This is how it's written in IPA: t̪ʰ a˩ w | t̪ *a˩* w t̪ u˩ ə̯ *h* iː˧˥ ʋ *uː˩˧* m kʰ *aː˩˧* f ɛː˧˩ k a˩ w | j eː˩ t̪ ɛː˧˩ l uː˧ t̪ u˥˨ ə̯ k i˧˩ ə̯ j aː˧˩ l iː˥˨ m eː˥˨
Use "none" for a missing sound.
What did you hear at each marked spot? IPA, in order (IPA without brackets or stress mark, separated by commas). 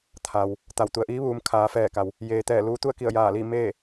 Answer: a˩, ʔ, uː˩˧, aː˩˧